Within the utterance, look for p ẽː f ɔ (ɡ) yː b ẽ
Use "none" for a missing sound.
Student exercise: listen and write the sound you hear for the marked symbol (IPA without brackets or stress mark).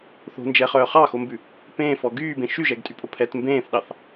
ɡ